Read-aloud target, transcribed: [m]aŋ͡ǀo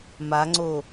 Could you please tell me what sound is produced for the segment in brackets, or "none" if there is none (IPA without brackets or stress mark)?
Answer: m